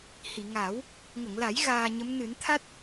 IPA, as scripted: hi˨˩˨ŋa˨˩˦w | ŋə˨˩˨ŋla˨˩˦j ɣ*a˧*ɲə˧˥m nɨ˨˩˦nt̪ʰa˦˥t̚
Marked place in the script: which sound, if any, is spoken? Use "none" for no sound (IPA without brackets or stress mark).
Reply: aː˧